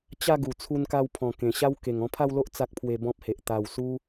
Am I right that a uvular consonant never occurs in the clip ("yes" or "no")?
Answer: yes